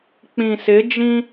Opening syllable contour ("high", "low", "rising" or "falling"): low